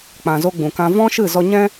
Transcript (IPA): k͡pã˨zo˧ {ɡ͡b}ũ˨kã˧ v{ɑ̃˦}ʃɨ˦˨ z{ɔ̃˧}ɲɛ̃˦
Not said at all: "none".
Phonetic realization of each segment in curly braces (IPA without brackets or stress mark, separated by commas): ɡ͡b, ɔ̃˦, ɔ˧